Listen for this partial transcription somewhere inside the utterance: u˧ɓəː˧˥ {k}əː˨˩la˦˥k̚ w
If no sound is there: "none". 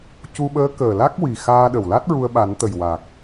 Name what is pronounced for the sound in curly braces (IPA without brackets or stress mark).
k